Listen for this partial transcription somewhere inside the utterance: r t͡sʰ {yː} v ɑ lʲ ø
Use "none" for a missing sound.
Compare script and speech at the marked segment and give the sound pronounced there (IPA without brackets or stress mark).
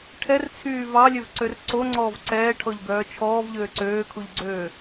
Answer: yː